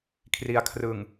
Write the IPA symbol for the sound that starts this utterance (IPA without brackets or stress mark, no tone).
kʰ